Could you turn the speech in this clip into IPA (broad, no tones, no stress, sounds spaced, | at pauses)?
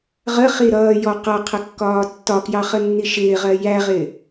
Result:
ʁ ə χ i ɾ ʌː j ɔ q ʌ qʰ ə kː ɒː tː ɒ k j ɑ χ ə nː i ʃ ɪː ʁ ɜ j æ ʁ ɪː